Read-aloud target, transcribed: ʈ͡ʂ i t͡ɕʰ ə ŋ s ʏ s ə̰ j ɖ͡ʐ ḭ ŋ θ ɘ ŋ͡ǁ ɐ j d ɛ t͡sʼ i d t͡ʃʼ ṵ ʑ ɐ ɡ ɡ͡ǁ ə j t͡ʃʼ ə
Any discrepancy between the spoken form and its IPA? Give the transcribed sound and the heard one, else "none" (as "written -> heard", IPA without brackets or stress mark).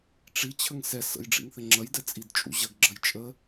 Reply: ʏ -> ɛ